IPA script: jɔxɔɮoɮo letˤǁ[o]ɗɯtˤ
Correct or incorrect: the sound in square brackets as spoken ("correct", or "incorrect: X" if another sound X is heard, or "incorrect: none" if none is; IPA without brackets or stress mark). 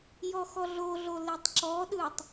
incorrect: ɔ